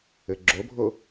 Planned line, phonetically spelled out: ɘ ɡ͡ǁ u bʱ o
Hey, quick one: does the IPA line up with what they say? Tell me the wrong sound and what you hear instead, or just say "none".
u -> o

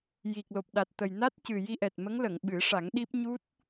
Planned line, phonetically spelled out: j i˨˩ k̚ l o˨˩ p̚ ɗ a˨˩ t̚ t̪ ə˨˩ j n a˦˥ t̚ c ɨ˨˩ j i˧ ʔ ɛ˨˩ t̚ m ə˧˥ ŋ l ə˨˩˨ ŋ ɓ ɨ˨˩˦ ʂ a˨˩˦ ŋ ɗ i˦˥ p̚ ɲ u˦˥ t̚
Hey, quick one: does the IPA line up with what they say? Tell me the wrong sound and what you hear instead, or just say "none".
none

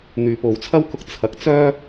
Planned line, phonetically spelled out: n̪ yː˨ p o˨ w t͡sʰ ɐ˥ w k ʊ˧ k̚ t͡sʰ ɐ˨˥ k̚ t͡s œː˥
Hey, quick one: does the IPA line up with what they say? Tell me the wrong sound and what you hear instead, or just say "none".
none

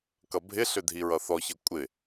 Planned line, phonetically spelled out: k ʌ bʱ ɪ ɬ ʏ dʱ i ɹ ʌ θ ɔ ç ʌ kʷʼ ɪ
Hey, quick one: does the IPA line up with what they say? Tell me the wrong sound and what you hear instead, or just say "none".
none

